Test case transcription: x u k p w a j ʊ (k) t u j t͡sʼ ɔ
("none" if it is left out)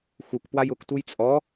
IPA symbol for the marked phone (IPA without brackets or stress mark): k